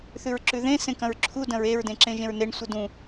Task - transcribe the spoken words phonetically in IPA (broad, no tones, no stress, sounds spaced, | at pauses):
θ ʉ ɹ ǁ ʉ ð ẽ s ẽ k ɐ̃ ɹ ǁʰ u d ɐ̃ ɹ e ɹ d ẽ ǁ ẽ ʒ ẽ ɹ n e ɳ sʷ ɨ d ũ